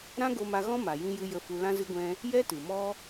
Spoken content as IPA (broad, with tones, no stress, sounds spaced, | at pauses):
ɾ ã˦ ɡ o˧ m a˧ ɣ ɔ̃˦ m a˨ j ĩ˧ j ɨ˧ j ə˧ f u˧ l ã˧ z ɨ˧ ɡʷ ɛ̃˧ | j ɛ˦ t ɨ˨ m ɔ˦